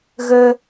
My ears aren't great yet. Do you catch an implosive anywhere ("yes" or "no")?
no